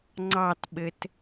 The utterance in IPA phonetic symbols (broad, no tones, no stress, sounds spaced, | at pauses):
ŋ͡ǀ ɑ t ɓ ɘ t